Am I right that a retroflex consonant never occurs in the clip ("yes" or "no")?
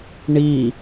no